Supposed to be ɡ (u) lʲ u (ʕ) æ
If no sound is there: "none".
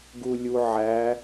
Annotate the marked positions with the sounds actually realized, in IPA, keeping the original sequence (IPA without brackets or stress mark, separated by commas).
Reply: u, ʕ